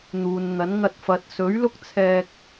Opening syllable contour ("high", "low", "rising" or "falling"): low